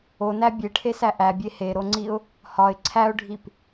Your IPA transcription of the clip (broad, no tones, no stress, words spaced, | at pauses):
onæ bʲeʈʰesæ ʔæbʲe heɾoŋ͡ǀiʊ̯ | hɒɪ̯ ǀʰæʊ̯ɖʱip